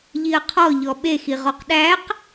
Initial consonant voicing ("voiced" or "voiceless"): voiced